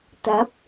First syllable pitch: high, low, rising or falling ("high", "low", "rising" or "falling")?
rising